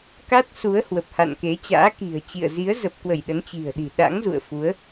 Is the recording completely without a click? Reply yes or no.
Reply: yes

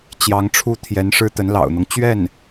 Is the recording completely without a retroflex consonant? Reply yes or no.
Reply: no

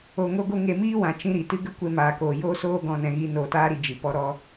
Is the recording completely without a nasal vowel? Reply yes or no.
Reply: no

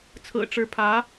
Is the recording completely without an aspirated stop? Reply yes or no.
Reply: no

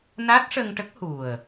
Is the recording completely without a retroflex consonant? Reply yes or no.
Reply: no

